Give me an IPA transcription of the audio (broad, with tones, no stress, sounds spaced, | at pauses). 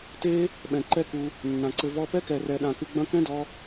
t e˦ | ɓ ɛ̃˨ ǃ ɛ˦ k u˧ | nː ã˨ ǀ ɘ˧ v ɔ˧ p ɛ˦ k ɛ˨ r ɛ˨ ɗ ã˨ k ɨ˧ ɡ͡b ɐ̃˦ k ɛ̃˦ d ɔ˧